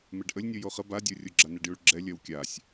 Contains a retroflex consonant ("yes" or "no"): yes